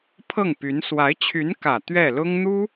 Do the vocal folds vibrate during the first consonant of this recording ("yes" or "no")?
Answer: no